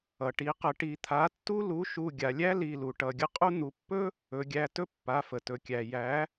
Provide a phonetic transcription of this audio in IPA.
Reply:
ʌ˩ʈi˩˥qə˩˥ ʈi˩˧ t̪ʰa˩˥tːu˥ lu˩˥ʃu˩˧˩ɡʲa˩lʲæ˥ li˩˧˩lu˩ ʈʌ˩˧˩ɡʲə˥qʼu˥ n̪u˩˧pːɵ˥ | ɵ˩˧ɡʲæ˩˧˩tɵ˥ pːa˩˧˩fə˩tɵ˩kʲæ˩ jæ˩˥

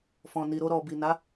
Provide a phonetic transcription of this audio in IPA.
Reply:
fɔ̃˨ni˨ɾo˧ ɾɔ˨bi˨na˨˦

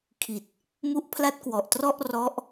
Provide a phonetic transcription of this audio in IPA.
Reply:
kʰi˨˩t̚ | mu˦˥ʔpʰla˦˥t̚kwɔ˨˩ʔtrɔ˥˩ʔ rɔ˦˥ʔ

